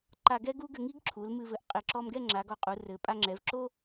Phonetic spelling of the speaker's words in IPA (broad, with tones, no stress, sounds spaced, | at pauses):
ǃ a˧ ɡ ɛ˥ ɡ u˥ ɡ ɘ˧ ŋ i˥ ɡ ǁʰ u˩˧ l m ɨ˧ v ɘ˧˩ ʔ qʼ e˧˩ ǁ ɔ˧ m ɡ ɛ˥˧ ŋ͡ǁ a˩˧ ɡ ɔ˧˩ qʼ u˩˧ r ɘ˩˧ pʼ a˧ ŋ͡ǁ ɛ˩˧ v ǁ o˥